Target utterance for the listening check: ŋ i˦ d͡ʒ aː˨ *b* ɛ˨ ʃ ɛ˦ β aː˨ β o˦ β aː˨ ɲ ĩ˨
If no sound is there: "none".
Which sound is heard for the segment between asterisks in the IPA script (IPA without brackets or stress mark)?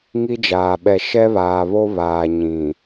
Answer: ɓ